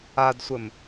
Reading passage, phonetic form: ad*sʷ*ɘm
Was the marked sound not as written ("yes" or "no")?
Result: no